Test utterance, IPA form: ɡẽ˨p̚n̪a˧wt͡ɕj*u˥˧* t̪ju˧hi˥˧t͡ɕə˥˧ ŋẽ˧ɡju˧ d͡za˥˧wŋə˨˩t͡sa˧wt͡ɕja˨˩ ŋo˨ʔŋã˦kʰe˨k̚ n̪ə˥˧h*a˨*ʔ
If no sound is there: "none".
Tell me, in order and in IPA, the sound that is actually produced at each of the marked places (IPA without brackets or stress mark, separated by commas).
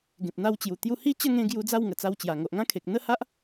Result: u˨˩, a˦